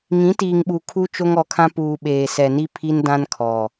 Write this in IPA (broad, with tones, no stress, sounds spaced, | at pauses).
ŋ ĩ˨˦ t iː˨ ŋ ɓ u˨ kʰ u˦ t͡ʃ o˦ ŋ ɔ˨˦ kʰ ã˦ p uː˨ ɓ eː˨ s ɛ˨ n i˦ pʰ i˦ n d ã˦ n kʰ ɔ˨